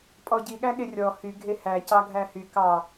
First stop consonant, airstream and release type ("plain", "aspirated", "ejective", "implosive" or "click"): ejective